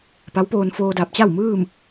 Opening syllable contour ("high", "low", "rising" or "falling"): rising